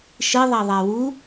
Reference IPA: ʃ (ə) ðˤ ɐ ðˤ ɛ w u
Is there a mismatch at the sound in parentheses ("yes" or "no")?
yes